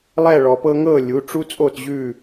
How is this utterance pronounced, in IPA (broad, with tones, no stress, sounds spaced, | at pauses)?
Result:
lˠ ɛ˥˧ ɭ ɔ˧ p ɤ˥ ŋ ɤ˥˧ lʲ u˧˥˧ ʈ͡ʂ u˥ t͡sʼ o˥˧ t ʑ ʉ˥˧